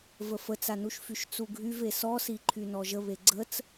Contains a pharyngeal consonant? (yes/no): no